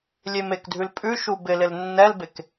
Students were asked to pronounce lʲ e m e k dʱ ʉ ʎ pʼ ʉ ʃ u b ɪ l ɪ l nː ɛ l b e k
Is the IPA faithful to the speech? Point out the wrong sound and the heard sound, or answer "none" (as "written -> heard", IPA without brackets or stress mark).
ʎ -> l